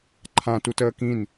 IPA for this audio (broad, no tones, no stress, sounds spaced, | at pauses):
ǃʰ ã t u t əː k ĩ n